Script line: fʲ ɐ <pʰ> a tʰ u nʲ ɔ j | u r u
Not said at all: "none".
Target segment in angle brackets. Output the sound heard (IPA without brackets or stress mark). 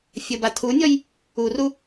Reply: b